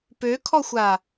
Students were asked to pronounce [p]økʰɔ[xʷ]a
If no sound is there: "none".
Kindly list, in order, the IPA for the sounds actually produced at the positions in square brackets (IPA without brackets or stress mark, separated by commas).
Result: p, xʷ